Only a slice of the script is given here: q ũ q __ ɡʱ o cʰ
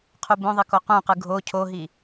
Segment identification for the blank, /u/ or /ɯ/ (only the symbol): ɯ